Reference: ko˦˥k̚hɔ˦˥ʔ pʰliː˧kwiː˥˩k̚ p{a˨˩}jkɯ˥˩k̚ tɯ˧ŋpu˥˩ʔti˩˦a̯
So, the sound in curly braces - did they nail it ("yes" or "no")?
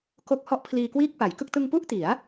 no